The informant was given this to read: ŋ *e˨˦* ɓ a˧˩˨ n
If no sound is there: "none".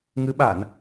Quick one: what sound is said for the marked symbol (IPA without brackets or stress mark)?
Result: ɨ˨˦